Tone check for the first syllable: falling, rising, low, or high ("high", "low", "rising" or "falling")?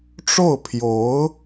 falling